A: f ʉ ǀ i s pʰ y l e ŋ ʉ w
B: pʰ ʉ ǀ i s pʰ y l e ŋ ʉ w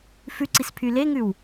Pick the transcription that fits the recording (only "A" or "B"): A